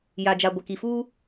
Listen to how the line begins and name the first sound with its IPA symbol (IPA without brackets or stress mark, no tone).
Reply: j